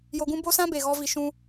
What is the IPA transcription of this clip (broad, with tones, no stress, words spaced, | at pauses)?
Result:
jo˧ɡũ˦ bo˦sã˦be˨ɣɔ˧ vi˧ ʃũ˧